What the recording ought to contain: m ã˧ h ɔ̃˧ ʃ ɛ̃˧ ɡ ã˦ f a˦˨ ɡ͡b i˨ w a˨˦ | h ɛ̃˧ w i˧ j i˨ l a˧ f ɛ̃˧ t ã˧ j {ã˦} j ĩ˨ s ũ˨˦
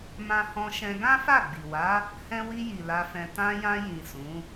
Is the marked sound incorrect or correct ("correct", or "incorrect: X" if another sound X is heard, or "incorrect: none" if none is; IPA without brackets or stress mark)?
incorrect: ã˧